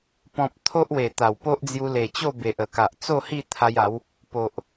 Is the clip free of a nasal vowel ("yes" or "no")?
no